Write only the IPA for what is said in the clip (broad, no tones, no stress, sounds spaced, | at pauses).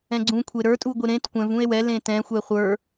ɛ̃ ɡ͡ǀ ũ kʷʰ e ɾ ə˞ tʼ u ɡʷ e ɾ ẽ t kʷ ɛ̃ v ũ e̯ w ɛ l ẽ t ɛ̃ xʷ ɛ χʷ ə˞